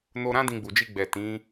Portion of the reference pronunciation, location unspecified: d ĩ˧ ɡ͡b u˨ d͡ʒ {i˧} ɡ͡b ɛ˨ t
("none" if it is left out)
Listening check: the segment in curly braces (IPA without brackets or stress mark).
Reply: i˧